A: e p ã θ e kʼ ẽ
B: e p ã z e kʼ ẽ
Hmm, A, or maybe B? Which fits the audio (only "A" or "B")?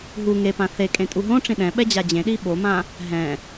A